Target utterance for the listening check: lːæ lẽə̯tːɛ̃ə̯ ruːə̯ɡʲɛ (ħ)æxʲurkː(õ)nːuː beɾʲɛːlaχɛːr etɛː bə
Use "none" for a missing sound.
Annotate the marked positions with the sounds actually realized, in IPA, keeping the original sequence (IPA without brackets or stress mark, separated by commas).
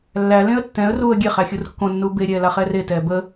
χ, õ